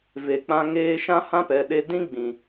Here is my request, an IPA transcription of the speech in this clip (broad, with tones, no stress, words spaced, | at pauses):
ve˨k͡pã˧ ŋeː˧ʃã˦hã˦pɛ˨ ɗe˧ dĩ˦ɡ͡bĩ˨